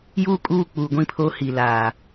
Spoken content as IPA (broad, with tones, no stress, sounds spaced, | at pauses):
j uː˦˨ kʼ uː˦˨ k͡p uː˨ ɡʷ ĩ˦˨ pʰ oː˦ h iː˨ l aː˨